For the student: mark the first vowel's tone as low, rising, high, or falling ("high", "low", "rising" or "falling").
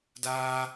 high